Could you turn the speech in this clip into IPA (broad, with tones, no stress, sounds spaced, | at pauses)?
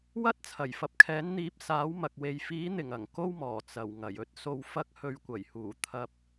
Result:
w ɐ˥ t̚ t͡sʰ ɐ˨˩ j f ɐ˨˥ p̚ kʰ ɛː˨˥ n n̪ iː˨˥ p̚ s aː˨˥ w m ɐ˨ k̚ w e˨ j f iː˨˥ n̪ ɪ˨˩ ŋ ɐ˨˩ ŋ k o˥ w m ɔː˨˩ t͡s ɐ˨˩ w ŋ ɐ˨˩ j ɵ˥ t̚ s o˧ w f ɐ˥ k̚ h ɵ˧ ɥ kʷ ɐ˨˩ j h uː˨˩ t̪ʰ ɐ˧ p̚